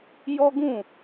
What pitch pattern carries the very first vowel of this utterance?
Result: high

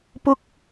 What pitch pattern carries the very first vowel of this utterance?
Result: high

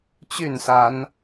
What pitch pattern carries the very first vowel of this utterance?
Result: falling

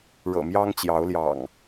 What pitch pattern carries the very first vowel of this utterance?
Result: low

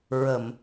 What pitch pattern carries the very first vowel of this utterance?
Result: low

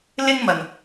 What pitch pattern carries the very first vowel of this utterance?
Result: high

